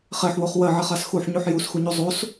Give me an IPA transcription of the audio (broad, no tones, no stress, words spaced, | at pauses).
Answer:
χeħwoχ wɜʕɛχas xuħɲuħ jusxuɲu zˤos